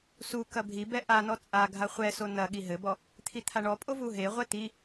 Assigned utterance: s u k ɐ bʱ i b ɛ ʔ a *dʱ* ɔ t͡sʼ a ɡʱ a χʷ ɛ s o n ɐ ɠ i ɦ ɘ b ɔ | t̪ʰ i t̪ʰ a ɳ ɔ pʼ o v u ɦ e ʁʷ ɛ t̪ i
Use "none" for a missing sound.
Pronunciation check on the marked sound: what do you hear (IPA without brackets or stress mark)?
n